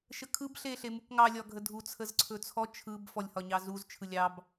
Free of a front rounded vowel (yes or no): yes